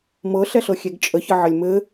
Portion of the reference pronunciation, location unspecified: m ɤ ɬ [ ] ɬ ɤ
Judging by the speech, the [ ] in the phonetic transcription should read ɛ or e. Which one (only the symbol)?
ɛ